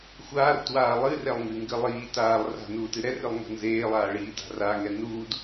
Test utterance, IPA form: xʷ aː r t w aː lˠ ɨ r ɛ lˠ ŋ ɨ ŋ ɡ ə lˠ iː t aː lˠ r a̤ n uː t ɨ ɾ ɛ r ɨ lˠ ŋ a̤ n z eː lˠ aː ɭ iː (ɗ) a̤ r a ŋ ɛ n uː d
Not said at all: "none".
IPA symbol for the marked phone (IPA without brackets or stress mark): d